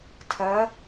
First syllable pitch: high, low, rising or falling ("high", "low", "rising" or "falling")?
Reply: rising